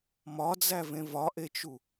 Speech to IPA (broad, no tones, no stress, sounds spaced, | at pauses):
m ɒ d͡z æ v ẽ v ɒ ʔ e t͡ʃ u